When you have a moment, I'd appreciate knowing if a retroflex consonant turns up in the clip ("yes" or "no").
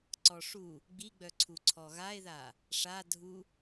yes